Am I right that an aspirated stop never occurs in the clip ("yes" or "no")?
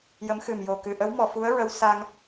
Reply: yes